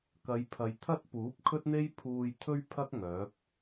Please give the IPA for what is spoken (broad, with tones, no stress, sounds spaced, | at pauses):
k ɐ˨˧ j pʰ ɐ˨ j t̪ʰ ɐ˥ t̚ p uː˨˥ p̚ kʰ ɵ˥ t̚ n̪ e˥ j pʰ uː˧ j t̪ʰ ɵ˥ ɥ pʰ ɐ˥ k̚ ŋ œː˨˥ p̚